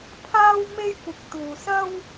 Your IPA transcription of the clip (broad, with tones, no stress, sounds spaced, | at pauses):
pʰ aː˧ w m e˧ j kʷ ɪ˨ k̚ t̪ uː˨ s ɐ˥ w